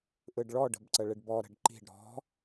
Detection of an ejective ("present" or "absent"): absent